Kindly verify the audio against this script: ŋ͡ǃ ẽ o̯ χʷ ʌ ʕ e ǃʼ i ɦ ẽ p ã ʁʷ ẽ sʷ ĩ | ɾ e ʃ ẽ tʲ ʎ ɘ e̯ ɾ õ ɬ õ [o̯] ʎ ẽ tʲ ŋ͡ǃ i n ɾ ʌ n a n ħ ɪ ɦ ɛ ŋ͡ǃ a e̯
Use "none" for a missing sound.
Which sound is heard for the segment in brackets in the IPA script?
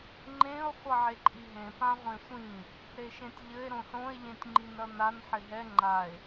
e̯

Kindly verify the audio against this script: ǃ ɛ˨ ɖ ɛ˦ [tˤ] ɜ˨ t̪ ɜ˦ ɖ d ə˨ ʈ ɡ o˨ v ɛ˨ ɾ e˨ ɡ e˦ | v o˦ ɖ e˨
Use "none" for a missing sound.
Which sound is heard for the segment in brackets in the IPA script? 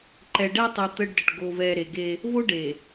tˤ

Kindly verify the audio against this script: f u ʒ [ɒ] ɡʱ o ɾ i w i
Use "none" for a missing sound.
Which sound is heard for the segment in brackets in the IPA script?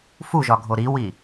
ɒ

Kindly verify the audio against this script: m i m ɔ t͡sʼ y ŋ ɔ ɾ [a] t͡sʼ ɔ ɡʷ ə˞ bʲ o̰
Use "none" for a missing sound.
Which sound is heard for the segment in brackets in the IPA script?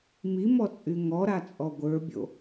a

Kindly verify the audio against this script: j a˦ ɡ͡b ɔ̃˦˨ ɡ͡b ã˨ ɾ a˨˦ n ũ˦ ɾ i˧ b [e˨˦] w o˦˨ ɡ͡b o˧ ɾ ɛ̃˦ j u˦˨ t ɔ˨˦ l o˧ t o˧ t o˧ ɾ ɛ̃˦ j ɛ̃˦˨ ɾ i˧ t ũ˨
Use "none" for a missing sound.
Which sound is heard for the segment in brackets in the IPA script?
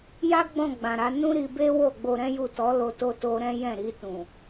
e˦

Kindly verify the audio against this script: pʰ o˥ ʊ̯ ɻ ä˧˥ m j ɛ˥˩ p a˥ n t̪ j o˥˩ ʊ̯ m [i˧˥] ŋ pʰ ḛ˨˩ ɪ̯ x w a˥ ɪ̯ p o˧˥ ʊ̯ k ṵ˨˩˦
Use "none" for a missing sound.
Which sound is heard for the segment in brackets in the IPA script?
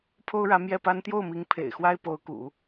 i˧˥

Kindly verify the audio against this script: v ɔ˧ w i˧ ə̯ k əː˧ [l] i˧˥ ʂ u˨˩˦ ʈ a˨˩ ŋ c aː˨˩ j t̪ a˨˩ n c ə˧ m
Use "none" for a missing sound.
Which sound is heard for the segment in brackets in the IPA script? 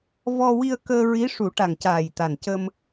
ɹ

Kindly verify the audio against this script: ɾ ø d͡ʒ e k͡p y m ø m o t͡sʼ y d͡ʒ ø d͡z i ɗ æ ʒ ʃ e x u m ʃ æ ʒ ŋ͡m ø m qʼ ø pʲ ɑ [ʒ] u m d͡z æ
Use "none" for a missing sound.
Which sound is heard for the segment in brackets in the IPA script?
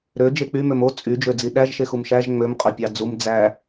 d͡z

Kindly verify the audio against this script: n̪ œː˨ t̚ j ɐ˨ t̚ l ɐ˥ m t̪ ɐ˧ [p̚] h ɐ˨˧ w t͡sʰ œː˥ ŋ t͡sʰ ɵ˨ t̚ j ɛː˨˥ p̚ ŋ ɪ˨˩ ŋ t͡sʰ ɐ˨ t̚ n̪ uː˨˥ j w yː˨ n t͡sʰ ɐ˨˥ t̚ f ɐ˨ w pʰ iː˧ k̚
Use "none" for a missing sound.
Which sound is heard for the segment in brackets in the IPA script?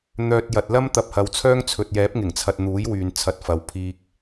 p̚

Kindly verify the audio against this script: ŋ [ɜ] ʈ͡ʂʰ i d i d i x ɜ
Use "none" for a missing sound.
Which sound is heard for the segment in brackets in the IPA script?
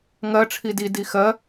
ɜ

